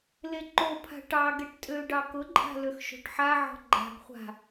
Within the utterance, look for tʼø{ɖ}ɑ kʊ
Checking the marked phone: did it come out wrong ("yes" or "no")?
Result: no